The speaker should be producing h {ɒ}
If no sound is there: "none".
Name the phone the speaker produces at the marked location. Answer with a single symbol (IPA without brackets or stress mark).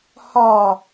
ɒ